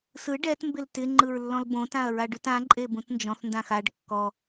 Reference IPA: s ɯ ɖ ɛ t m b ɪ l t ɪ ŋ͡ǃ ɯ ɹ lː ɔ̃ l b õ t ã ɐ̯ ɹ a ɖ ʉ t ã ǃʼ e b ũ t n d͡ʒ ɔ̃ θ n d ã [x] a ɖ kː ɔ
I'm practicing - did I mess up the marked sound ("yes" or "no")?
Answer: no